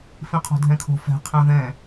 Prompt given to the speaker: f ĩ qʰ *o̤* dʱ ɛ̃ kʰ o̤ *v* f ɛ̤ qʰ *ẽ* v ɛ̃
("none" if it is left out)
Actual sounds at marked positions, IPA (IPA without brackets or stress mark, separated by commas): o̤, none, ẽ